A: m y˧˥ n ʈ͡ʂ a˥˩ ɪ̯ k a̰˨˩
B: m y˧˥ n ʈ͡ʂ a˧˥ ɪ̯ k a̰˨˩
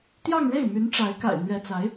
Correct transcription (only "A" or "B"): B